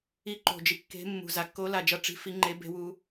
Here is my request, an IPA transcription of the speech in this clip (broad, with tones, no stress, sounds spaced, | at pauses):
i˨˦ ǃ o̤˩ d͡ʒ i˩ kː e̤˨˦ mː ṳ˩ z a˩ kː o˨˦ l a˩ d͡ʒ ʌ˨˦ ʈ͡ʂ i̤˨˦ f i˨˦ ŋ͡ǃ e˨˦ b e̤˨˦ w u˨˦